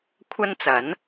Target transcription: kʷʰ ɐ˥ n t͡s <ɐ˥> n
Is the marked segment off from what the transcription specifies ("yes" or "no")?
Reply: yes